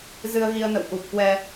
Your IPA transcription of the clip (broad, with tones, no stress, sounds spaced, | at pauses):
z ɨ˧ ə̯ ɣ i˧ ə̯ n ə̰˧˨ w ʔ u˨˩ p̚ k w ɛ˧